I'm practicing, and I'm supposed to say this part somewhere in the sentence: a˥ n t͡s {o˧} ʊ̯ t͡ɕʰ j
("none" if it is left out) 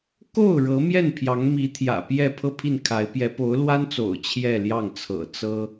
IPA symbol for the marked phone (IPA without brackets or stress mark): o̰˨˩